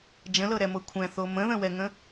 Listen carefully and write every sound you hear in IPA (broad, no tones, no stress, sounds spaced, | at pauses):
d͡ʒ ə̃ l ɤ ɾ ɛ m ɤ kʷʰ ɛ̃ θ o m ə̃ ð ə̃ w ɛ ŋ ə̃